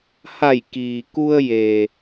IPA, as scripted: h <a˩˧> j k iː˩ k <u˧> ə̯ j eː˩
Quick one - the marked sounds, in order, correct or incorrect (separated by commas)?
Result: incorrect, correct